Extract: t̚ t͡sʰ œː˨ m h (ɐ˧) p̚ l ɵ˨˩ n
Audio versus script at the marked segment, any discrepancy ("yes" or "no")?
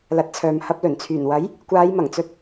no